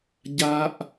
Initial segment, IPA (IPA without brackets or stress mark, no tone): ɟ